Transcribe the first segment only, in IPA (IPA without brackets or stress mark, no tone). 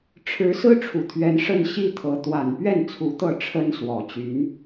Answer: ʈ͡ʂʰ